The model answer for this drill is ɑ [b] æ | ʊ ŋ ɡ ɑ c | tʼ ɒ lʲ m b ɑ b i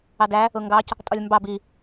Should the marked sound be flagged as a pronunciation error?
yes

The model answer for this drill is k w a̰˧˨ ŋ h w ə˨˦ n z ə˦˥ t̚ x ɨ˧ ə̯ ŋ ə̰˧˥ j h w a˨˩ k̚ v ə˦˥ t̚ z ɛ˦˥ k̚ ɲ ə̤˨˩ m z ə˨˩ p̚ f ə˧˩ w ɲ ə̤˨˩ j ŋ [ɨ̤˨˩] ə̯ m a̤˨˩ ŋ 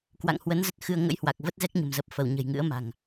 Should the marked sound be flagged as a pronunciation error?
yes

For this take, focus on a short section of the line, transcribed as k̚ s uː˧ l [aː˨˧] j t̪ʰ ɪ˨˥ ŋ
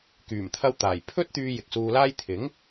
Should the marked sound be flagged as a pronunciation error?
yes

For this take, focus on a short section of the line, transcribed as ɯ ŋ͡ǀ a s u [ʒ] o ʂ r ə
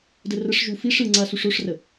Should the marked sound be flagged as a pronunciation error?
yes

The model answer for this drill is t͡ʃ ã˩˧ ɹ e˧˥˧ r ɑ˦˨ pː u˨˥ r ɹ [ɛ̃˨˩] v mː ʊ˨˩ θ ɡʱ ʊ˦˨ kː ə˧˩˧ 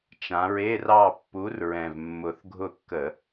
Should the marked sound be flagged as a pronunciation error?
no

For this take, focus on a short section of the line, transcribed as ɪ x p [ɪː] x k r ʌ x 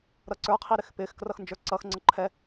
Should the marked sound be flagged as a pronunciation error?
no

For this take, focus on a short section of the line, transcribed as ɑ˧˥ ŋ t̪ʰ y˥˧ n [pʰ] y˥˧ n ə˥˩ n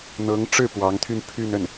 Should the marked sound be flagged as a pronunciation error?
no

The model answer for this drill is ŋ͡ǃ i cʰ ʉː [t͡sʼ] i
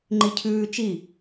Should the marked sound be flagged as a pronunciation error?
yes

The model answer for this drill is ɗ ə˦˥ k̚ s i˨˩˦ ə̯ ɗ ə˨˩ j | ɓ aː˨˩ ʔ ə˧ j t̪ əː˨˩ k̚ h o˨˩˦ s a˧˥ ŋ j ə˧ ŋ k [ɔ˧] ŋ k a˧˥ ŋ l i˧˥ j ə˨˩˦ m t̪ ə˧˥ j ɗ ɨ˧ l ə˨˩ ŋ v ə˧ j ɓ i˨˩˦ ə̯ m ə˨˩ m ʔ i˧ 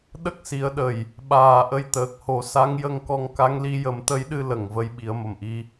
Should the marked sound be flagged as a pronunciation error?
no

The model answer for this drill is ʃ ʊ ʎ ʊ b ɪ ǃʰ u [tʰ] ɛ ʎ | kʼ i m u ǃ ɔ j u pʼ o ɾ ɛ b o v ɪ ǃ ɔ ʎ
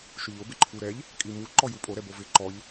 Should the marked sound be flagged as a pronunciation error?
yes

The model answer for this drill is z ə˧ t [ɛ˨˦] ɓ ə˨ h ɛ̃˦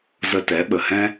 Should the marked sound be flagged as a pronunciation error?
no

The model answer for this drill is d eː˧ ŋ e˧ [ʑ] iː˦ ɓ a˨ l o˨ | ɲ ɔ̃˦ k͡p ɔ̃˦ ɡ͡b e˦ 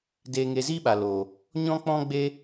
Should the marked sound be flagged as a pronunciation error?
yes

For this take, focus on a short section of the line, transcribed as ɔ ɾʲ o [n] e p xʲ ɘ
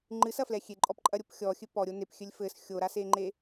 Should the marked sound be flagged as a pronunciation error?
no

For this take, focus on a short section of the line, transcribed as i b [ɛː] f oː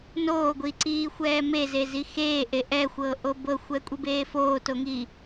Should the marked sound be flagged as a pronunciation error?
yes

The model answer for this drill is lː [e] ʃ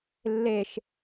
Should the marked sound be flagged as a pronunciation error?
no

